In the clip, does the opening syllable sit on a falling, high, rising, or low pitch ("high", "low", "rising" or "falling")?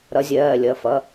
rising